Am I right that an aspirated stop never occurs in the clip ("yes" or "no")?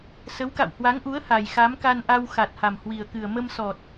yes